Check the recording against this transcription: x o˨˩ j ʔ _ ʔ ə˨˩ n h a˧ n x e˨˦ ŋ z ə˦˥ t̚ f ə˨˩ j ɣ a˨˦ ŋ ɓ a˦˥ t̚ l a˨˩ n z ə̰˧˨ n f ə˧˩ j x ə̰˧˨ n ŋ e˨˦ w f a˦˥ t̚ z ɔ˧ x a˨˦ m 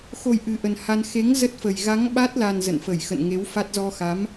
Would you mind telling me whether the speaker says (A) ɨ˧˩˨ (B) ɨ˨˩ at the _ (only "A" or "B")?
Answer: B